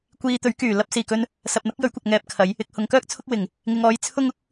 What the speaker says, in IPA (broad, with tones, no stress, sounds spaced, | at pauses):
kʷ iː˧ t̪ ɵ˨˥ ɥ k yː˨˩ l ɐ˧ p̚ s iː˨˩ k ɵ˧ n | s ɐ˨ p̚ n̪ ɐ˨˥ k̚ j ɵ˨˥ ɥ kʷ ɐ˨ k̚ ŋ ɛː˨˥ p̚ kʰ ɐ˨˧ j | ɪ˨ k̚ h ʊ˨ ŋ k œː˥ k̚ t͡sʰ ʊ˥ k̚ w ɪ˨˩ ŋ | ŋ ɪ˨ ŋ ɔː˨˧ j t͡sʰ ʊ˥ ŋ ʊ˥ k̚